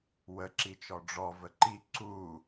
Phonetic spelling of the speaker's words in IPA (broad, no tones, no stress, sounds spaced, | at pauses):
w ə ǁ i t͡ʃ ɔ ɖ͡ʐ ɔ v ə ǃ i ǀ u